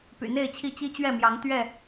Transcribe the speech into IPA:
p y̰˨˩ n̪ e˥˨ ɪ̯ t͡ɕʰ i˥˨ t͡ɕ i˦ t͡ɕ ɥ ɛ˥˨ m j ɑ˨˦ ŋ t̪ ɥ ɛ˥˨

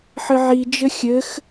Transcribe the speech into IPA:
ħ ɘ ʕ i d͡ʒ ɘ xʲ ɘ x

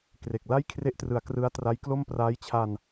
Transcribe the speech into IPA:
k r e˨˩ k̚ l a˥˩ j kʰ r e˦˥ ʔ t r ɯ˩˦ a̯ k r ɯ˦˥ a̯ t r a˦˥ j k l o˥˩ m p r aː˦˥ j t͡ɕʰ a˧ n

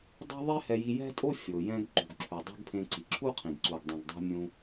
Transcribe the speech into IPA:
dˤ ɛ̤˥ ðˤ e˥ h ɛ˧ j i˧ j ɛ̤˥ tʼ o˥ fʲ o˩ j ɛ̃˧ ɡ ǃ ṳ˩ ɡ ǁʰ u˩ dˤ o̤˥ ɡ pʰ ẽ˧ ǀ i˩ ǁʰ u˥ qʰ ĩ˩ ɡ ǀ u˩ ɡ dˤ ĩ˩ ɡ dˤ ɛ̤˧ mʲ ũ˧

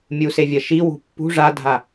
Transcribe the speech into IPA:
mʲ u s e vʲ ɐ ʃ i w ṳ pː ṳ ʐ a dʱ a

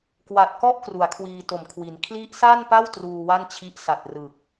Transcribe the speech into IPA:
k w a˨˩ t̚ k ɔ˥˩ ʔ k r u˩˦ a̯ kʰ w iː˧ t o˨˩ m kʰ w i˩˦ n kʰ l i˦˥ ʔ s a˥˩ n p a˥˩ w t r uː˧ w a˥˩ n t͡ɕʰ i˦˥ ʔ s a˨˩ t̚ r ɯ˨˩ k̚

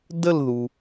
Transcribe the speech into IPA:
d ə˥˧ l ð u˩

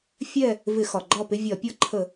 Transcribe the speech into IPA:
fʲ ɛ˦˨ | v ɪ˧˩˧ x ɒ˩ ɡ͡ǃ ɒ˦˨ p ɪ˦ vʲ ɒ˧˩˧ pʲ ɔ˦ ǃʰ ə˧˩˧

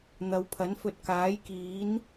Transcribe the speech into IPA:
n̪ ɐ˨˧ w pʰ ɐ˨˥ n f ɵ˧ t̚ k aː˨˥ j k iː˨˥ n

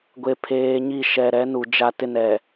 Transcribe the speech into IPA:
ɡʷ e˨ pʰ eː˨ ɲ i˦˨ ʃ ɛ˨ ɾ ɛ˨˦ n u˨ d͡ʒ a˦ t ɪ˦ n ɛ˨

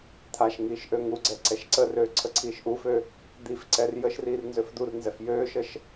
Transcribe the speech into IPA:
t̪ʰ a ʃ ŋ iː ʃ ʔ ø ŋ u ɡ͡ǀ ɛ ǀ ɛ ʃ ǀ ə r øː ǀʰ ə ǀʰ iː ʃ ʔ u f ø | d̪ i f ǀ ɛ r j ə ʃ r iː r n z ø f d̪ u r n z ɛ f j øː ʃ ə ʃ

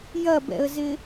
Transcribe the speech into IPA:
j ɐ b ɛ̰ ə̯ z ɪ

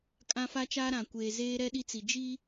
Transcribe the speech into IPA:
kʼ ã˦ f a˦ t͡ʃ aː˦ ɾ ã˨ kʷ eː˨ z eː˦ ɾ ɛ˦ ɗ i˦ t͡s i˨ d͡ʒ i˦

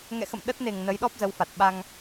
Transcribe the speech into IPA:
ŋ ɛ̰˧˨ x ə̰˧˨ m ɗ ə˦˥ t̚ n e˨˩ ŋ n ə˨˦ j ɗ ɔ˦˥ p̚ z ə˨˦ w f a˨˩ t̚ ɓ a˧ ŋ

